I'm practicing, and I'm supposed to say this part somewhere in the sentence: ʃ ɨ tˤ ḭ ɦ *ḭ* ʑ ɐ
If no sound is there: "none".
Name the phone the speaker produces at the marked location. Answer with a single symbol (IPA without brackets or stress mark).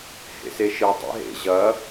ḛ